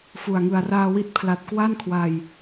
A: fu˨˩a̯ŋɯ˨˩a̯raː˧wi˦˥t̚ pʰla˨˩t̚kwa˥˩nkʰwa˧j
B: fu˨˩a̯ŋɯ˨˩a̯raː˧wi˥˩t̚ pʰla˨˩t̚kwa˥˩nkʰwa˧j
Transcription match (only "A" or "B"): A